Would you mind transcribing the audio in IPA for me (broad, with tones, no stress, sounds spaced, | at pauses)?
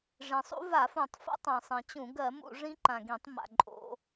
ʐ ĩ˩ sˤ ṵ˦˥ v a˧˩˧ f ũ˧˩˧ tˤ f o̰˦˥ tˤ ã˩ sˤ ĩ˩ t͡ɕ ũ˧˩˧ ɡ ɜ˧˩˧ m ṵ˧˩˧ ʐ ĩ˦˥ ǃ ã˩ ɡ ĩ˧˩˧ tˤ m a̰˩ ǃʼ o̰˧˩˧